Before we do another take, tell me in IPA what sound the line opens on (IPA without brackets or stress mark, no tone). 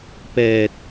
p